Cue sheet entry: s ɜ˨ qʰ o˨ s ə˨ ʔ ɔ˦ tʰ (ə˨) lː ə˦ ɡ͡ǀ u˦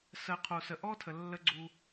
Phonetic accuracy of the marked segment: correct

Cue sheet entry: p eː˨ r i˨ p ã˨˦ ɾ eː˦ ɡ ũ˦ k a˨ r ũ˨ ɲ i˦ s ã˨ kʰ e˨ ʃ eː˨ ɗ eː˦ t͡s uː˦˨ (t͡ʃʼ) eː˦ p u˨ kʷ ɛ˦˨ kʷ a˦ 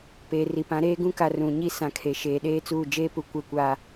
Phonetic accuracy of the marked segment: incorrect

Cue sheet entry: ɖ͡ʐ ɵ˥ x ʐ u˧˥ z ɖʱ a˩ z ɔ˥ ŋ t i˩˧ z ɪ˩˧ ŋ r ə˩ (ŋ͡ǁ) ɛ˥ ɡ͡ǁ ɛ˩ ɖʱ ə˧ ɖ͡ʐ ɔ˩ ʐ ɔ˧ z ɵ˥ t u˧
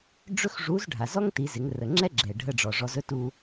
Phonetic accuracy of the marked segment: correct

